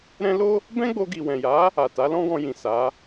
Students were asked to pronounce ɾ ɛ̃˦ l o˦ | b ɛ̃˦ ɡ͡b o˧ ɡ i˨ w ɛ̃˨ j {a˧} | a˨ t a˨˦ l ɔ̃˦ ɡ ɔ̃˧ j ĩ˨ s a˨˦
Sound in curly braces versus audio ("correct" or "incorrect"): incorrect